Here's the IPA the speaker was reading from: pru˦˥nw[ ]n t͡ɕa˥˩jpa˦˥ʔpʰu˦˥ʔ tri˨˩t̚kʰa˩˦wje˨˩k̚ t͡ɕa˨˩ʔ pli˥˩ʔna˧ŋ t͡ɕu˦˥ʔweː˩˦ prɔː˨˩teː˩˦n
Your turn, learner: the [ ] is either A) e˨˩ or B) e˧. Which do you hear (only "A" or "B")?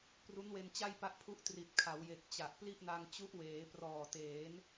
B